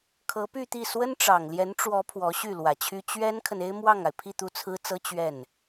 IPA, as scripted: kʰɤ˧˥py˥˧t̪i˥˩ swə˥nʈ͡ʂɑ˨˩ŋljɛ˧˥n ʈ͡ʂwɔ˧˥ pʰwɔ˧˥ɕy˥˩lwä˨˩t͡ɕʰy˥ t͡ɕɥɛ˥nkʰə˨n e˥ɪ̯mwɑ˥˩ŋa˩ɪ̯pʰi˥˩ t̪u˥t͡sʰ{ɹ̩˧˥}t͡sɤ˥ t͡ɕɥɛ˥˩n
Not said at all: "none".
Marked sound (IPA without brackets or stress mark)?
ɹ̩˥